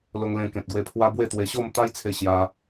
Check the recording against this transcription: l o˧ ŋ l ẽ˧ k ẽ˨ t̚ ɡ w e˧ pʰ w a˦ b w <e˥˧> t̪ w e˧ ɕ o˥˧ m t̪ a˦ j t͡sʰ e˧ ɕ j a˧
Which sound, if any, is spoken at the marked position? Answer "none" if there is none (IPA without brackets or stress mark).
e˥˧